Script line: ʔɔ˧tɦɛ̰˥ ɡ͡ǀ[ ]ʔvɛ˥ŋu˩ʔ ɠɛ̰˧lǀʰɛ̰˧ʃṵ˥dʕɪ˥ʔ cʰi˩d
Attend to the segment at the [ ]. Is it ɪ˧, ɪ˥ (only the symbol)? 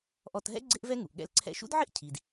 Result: ɪ˥